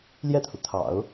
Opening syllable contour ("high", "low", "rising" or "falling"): falling